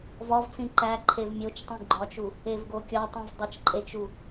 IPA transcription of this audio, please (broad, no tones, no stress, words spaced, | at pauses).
vɒvt͡sĩ ǃæǃʰev mʲot͡ʃtˤũ ɡ͡ǃɒt͡ʃu | evɡokʲɒtˤũv dˤet͡ʃǃʼet͡ʃu